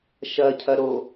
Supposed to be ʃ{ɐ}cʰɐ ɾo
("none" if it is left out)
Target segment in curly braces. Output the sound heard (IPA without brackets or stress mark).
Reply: ɐ